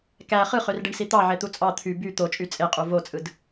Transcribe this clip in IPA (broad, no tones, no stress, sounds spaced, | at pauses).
k æ χ ɯ χ ø r ɖ i ɳ s i t̪ ɑ ʕ e t̪ u t͡sʼ ɑ t̪ʰ y b y t̪ o t͡ʃʼ y t͡sʼ e qʼ u v o t͡sʼ ɯ d